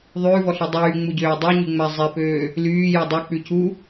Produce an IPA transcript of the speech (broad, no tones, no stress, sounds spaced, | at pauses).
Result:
ðˤ ʉː v ɔ ɬ e dˤ yː ŋ͡m u ɟ øː dˤ u ɲ y ŋ͡m æ zˤ e p øː | l yː j ɔ dˤ ø k͡p ʉ c u